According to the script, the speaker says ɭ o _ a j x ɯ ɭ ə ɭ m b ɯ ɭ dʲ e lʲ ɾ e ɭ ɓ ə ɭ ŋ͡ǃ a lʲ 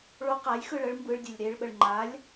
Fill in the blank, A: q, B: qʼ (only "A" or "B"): A